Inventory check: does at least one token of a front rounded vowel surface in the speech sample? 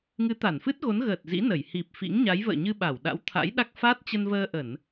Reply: no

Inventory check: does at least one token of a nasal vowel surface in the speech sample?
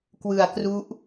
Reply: no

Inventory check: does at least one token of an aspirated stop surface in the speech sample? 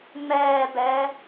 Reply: no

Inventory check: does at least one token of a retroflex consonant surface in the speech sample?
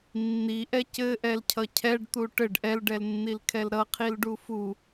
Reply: yes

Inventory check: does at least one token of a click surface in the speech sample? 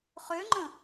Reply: yes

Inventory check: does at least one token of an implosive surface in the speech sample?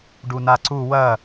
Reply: no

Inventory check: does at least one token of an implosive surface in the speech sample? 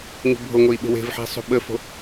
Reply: yes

